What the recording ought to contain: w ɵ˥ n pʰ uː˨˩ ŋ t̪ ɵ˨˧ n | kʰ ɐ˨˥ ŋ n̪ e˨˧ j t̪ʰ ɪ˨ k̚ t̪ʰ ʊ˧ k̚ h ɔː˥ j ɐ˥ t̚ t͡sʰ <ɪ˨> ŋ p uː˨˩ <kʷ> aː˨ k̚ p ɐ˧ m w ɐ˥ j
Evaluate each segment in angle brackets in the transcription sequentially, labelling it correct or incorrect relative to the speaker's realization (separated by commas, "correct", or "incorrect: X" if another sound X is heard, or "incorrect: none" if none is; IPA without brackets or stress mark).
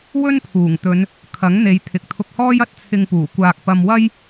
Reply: incorrect: ɪ˧, correct